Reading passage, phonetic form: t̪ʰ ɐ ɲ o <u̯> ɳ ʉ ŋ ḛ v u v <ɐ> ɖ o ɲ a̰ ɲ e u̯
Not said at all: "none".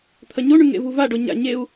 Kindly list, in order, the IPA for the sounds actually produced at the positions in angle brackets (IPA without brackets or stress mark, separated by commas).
none, a